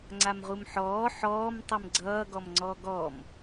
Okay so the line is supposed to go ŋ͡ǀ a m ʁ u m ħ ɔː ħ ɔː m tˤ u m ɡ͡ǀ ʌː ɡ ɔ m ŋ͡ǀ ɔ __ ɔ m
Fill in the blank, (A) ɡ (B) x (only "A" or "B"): A